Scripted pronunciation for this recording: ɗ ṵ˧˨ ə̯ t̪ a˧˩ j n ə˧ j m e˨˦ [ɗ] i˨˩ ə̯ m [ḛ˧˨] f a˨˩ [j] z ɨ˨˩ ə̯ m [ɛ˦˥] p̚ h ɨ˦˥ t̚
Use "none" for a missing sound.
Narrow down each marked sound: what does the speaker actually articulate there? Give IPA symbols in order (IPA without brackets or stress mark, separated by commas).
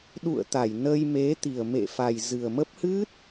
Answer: t̪, ḛ˧˨, j, ə˦˥